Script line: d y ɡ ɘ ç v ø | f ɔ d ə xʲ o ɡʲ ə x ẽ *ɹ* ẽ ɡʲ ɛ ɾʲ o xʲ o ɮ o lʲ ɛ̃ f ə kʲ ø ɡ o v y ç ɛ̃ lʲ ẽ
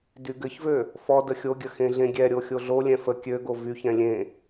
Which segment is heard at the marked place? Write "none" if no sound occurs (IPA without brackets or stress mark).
ɮ